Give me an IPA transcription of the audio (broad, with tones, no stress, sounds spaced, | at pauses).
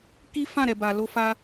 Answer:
k i˦ f ã˦˨ ɾ ɛ˨ b a˨ l o˧ f a˧